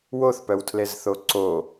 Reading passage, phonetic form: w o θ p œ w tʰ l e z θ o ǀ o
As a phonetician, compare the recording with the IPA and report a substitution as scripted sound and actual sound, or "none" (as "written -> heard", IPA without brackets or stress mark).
none